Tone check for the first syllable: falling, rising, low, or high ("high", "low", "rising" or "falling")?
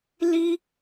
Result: high